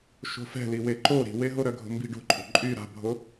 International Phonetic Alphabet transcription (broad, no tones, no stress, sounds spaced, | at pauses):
ʃ o̤ f ɛ̤ l i w e ǃ o ɾ i̤ w e ɦ o ɾ œ ɡʱ o̤ m b i̤ ɖ o̤ ǃʼ o̤ ǃʼ y ɾ a̤ bʱ o